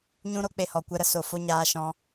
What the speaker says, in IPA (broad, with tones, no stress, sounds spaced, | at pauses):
ɲ ũ˦ ɾ o˦ k͡p e˨ h ɔ˨ kʷ ɛ˧ ɾ ə˧ s o˨ f o˦ ɲ aː˧ ʃ ɔ̃˧